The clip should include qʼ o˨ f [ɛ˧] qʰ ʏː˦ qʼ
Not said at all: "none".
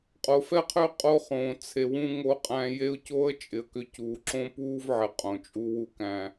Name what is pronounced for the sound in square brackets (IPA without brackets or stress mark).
ɛ˦